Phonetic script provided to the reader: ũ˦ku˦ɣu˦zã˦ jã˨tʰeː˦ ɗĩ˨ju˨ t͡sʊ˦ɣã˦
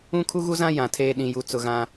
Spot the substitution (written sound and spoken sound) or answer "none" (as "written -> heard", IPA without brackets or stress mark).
k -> kʰ